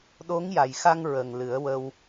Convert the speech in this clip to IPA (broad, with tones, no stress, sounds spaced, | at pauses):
ɗ o˧˥ ŋ j a˨˩ j x a˧ ŋ ɹ ə˨˩ ŋ l ɨ˨˩˦ ə̯ w ə˧ w